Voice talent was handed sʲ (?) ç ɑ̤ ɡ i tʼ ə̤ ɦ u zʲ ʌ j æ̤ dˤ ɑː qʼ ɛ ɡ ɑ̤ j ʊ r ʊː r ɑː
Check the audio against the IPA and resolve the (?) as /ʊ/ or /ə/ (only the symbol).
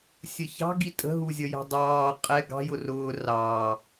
ə